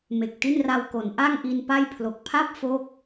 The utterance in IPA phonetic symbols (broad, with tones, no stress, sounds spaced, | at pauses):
m e˨˩ k̚ t i˥˩ n r a˧ w k o˩˦ n ʔ a˥˩ ŋ ʔ i˧ n p a˥˩ j pʰ l o˨˩ k̚ pʰ a˥˩ p̚ f o˥˩ k̚